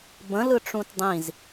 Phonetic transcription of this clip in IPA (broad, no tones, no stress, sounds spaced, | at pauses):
b ə̃ l ɯ ʈ͡ʂ ũ t dˤ ĩ z